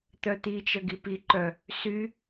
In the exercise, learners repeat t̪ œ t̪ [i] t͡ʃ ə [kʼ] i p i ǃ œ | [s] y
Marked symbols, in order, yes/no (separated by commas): yes, no, yes